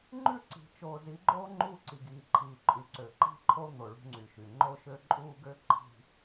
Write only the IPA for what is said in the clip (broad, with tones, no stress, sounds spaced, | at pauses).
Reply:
ŋ͡ǃ ʉ˦˨ ǀ i̤˨ t͡ʃ oː˨ z i˨˦ ɡ͡ǃ oː˦ ŋ͡ǃ uː˦ ǀ i˨ ɡ iː˨ ǃʰ iː˨ ǃʼ ʉ˨ ǀ ø˨ ǃ i̤˦ ǃʰ o˦ n̪ o˨ ɭ ṳ˦ ŋ͡ǀ y˨ ʃ y˨ ŋ͡ǃ o˦ ʃ ø˦ ǃʼ uː˦ ɡ ø˦ ǃʰ i̤˨